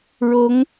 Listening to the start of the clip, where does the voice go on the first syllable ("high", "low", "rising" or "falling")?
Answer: rising